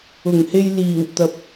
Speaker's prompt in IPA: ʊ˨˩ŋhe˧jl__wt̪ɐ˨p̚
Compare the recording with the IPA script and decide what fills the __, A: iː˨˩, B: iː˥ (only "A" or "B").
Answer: A